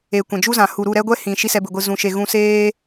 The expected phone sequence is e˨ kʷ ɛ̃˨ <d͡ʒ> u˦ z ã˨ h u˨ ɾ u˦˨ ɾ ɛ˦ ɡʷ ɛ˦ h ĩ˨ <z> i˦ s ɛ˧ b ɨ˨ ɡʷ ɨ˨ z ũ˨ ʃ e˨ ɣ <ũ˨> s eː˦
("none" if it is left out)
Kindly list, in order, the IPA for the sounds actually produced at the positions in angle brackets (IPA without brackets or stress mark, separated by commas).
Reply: d͡ʒ, ʃ, ũ˧